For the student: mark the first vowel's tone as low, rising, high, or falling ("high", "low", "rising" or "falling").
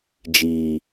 low